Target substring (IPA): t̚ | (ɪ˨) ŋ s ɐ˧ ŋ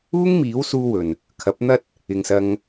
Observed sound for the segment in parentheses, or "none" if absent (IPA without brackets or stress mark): ɪ˨